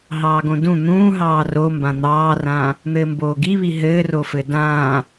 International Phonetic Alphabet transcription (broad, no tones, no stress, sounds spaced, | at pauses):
ɦ ɑː ɡ õ d ũ n̪ ũː ɦ ɑː r o m b ã n̪ ɑː r ãː | n̪ ɘː m b oː ɡ i β i ɦ ɘː r o f ɘ d ãː